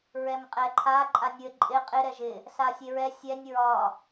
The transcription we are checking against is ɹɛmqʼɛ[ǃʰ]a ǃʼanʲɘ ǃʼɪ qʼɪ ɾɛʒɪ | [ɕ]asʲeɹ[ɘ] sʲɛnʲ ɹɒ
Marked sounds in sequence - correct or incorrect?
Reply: correct, incorrect, incorrect

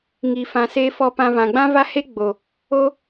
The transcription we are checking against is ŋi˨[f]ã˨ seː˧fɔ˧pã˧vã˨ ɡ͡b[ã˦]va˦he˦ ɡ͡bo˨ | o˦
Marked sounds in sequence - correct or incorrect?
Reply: correct, correct

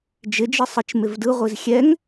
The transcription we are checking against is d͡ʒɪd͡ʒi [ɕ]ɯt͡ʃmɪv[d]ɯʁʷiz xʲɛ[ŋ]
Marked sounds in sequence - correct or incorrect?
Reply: incorrect, correct, correct

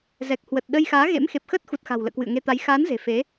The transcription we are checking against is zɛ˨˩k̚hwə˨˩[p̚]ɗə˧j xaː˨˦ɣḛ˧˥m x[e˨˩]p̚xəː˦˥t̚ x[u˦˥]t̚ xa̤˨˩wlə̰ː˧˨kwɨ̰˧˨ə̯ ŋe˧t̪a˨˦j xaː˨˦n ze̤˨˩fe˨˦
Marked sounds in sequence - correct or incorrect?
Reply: incorrect, correct, incorrect

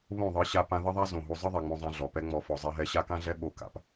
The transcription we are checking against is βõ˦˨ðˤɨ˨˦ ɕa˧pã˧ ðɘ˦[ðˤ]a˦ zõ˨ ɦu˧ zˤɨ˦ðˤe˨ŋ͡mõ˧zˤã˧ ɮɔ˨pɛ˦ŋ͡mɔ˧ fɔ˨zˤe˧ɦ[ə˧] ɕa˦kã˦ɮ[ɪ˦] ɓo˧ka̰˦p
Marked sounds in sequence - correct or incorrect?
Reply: correct, incorrect, incorrect

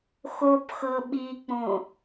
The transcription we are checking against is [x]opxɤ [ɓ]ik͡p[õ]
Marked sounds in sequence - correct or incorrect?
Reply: correct, correct, correct

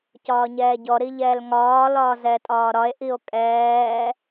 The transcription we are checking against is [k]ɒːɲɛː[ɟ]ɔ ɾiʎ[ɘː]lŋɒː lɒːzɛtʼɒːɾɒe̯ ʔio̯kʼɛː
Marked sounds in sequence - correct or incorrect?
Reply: incorrect, correct, incorrect

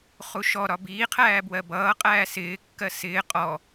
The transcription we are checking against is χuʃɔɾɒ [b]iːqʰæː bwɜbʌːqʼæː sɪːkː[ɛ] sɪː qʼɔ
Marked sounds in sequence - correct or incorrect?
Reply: correct, incorrect

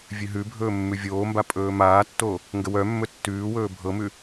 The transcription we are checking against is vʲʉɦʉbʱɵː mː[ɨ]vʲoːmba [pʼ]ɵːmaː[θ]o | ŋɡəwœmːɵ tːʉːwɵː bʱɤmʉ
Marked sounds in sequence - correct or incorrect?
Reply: incorrect, correct, incorrect

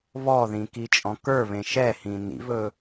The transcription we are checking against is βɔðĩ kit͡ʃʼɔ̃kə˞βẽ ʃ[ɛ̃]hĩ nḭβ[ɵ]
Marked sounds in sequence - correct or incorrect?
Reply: incorrect, correct

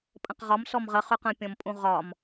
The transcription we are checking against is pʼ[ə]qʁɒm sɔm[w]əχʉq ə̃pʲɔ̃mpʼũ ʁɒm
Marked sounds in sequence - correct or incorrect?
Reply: incorrect, incorrect

